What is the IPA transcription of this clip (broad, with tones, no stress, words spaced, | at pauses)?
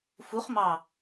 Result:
fu˨˥χmɑ˧˩